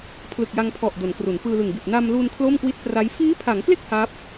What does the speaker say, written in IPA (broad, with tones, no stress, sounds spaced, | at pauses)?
pʰ l ɯ˨˩ k̚ j a˧ ŋ pʰ ɔ˨˩ ʔ d o˩˦ n k r u˩˦ n p ɯː˧ l ɯ˨˩ ŋ b i˨˩ t̚ n a˧ m l u˧ n kʰ l o˥˩ m k w i˥˩ t̚ p r a˦˥ j f iː˦˥ pʰ a˩˦ ŋ k l e˥˩ k̚ h a˦˥ p̚